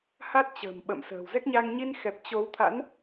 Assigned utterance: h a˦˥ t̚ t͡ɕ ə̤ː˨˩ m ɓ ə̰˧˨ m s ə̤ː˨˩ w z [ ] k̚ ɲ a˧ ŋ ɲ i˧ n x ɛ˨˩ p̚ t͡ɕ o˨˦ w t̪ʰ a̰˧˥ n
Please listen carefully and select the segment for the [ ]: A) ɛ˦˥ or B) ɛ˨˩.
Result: A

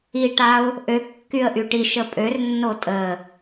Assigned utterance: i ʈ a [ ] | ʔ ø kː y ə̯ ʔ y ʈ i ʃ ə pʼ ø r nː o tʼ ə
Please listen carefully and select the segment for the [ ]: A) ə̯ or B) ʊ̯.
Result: B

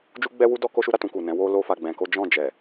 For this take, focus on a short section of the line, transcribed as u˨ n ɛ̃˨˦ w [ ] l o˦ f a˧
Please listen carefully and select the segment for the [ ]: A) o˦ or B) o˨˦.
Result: A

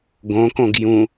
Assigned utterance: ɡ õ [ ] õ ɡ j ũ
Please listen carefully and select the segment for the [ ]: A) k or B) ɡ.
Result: A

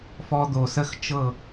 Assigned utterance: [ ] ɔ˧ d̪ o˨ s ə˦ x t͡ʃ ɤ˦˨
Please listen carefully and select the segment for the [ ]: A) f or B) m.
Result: A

